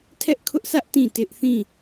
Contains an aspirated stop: yes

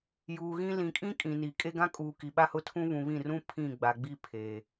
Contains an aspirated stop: yes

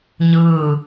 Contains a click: no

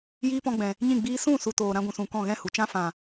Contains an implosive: no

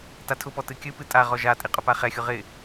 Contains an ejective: yes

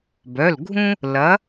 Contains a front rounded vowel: yes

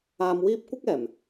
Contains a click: no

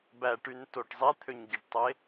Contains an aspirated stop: yes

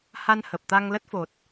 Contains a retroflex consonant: no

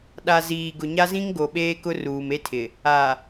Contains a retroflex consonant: no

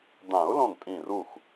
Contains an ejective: yes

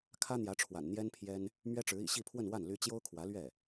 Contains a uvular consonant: no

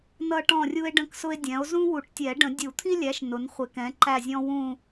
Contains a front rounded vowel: no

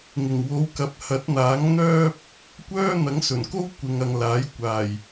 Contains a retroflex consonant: no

